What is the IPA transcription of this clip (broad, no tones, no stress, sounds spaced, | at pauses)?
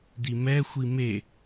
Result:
d̪ i m ɛ xʷ i m e